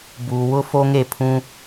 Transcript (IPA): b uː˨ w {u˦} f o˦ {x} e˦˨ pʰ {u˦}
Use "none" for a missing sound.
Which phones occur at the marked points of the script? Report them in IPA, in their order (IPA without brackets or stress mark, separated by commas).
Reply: ʊ˦, ŋ, ũ˦